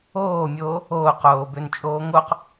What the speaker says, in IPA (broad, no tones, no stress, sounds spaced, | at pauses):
oː mʲ oː | oː q oː b ø n t͡ʃʼ oː ŋ o q